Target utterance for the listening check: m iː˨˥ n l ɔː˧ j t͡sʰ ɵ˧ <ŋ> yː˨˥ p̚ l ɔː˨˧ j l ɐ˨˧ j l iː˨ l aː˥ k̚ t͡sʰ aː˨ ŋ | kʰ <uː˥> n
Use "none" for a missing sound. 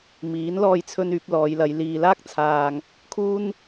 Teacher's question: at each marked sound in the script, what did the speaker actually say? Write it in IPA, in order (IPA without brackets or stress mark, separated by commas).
n, uː˥